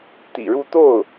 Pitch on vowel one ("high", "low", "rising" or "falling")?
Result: low